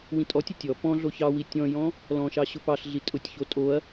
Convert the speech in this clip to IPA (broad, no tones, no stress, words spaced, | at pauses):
wĩtʼɔtʲʊ tʲɔ pɔ̃ɮo çɑwi tʲɔ̃jɔ̃ | lɔ̃ʃɑ ɕʊpɑɬɮi tʼʊtʲço tʼoɐ̯